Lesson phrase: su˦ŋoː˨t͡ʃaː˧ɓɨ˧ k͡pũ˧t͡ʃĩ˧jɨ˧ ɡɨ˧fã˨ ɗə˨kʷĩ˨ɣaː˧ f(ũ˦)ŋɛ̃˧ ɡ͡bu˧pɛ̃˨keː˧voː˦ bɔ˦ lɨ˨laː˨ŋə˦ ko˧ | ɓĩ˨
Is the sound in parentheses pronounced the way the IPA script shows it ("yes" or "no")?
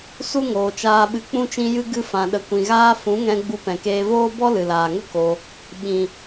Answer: no